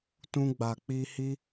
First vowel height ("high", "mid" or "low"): high